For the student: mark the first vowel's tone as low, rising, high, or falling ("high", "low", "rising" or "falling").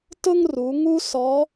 high